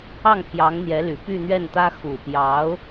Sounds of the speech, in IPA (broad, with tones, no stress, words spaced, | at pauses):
ɑ˥˩ŋpʰjɑ˧˥ŋn̪jɛ˧˥ly˨˩ py˥˧n̪ɥɛ˥˩nt̪ä˥ xu˨˩pjɑ˧˥ʊ̯